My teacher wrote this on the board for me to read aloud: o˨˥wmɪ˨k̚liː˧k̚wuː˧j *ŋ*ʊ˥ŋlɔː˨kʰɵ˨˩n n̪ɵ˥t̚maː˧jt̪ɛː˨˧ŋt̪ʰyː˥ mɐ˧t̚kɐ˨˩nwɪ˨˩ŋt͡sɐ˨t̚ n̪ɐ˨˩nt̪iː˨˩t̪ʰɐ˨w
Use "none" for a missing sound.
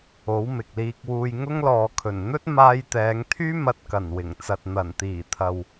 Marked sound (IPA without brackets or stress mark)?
ŋ